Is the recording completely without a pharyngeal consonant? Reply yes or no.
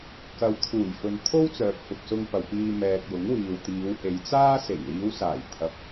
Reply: yes